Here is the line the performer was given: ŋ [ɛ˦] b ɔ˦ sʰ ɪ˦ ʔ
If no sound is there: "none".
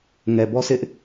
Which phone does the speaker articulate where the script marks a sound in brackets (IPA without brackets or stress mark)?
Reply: ɛ˨